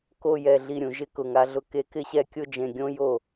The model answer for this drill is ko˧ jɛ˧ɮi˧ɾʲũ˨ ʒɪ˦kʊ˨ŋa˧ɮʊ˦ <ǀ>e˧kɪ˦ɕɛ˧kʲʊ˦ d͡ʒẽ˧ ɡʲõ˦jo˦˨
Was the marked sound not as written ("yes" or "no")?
yes